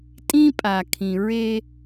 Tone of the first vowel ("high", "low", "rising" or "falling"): high